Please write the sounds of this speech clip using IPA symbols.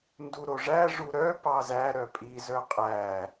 nduɾoʐæʐu ɾœpɑ zæ ɾœpʼizœ qʼæ

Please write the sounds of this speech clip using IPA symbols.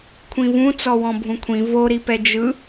kʷʰĩvũ t͡sɔwɔ̃bʱũkʷʰĩ voɾipɛ d͡ʒɯ

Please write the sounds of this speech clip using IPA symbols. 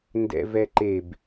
ndɛ̰vɛǃeb

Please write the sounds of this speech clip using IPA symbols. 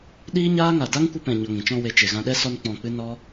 ɗiː˦ɲaː˦ŋa˨ da˦ŋkʷɨ˧pɛ̃˨ ɲɔ˧ŋĩ˨ t͡ʃɔ̃˧we˨t͡ʃe˨ ɣã˧ɗɛ˦ sɔ˦nk͡pɔ̃˧k͡pɨ˦ nɔ˦

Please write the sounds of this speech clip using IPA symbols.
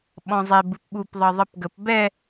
ɓɔ̃zˤe bɨpɓup ðˤɤðˤɨpɡəp bɛ

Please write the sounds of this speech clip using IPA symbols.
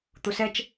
t̪usɛt͡ʃ

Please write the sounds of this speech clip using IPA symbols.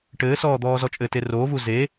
ʈɘːsɔː d̪ɔːzɔt͡ʃʼɘte ro vuze

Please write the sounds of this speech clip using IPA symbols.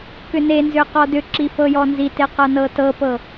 kʏnenzʏ qɔdʏǁi fɤjɔnzite qɤnɤtɤpɤ

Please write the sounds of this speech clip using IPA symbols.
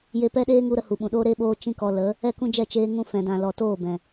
je˧pɛ˦ɗeː˦ŋu˧ ɾə˧hu˨ɓũ˨ɗoː˦ ɾe˦ɓoː˧ t͡ʃĩ˦kɔ˧ lə˨˦ | ɛ˦˨kũ˦d͡ʒɛ˦˨ t͡ʃeː˧ŋũ˧ fɛ̃˨dã˨ lɔ˨toː˦˨ bɛ̃˨

